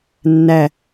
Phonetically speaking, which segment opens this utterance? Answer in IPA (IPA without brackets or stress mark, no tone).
nː